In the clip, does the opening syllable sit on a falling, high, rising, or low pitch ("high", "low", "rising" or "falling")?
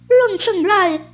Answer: falling